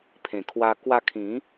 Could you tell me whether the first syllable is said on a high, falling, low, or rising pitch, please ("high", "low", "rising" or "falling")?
low